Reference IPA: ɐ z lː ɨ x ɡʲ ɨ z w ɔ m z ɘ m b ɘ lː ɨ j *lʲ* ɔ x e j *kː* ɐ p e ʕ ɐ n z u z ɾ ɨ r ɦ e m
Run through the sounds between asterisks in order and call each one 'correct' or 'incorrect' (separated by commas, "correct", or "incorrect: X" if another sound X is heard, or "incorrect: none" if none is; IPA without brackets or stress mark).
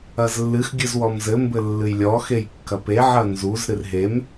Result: correct, correct